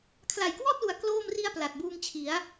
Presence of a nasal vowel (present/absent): absent